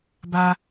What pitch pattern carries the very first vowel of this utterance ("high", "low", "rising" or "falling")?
high